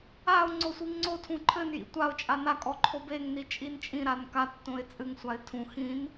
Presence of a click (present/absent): present